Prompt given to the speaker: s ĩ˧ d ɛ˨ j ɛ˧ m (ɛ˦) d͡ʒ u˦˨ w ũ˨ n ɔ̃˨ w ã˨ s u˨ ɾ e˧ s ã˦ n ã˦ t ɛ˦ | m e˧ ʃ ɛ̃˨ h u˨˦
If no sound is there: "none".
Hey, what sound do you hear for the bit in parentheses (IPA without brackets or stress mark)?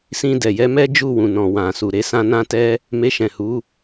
ɛ˦